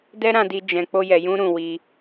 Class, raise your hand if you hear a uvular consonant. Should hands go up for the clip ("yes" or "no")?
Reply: no